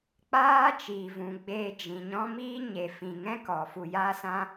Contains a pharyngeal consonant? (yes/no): no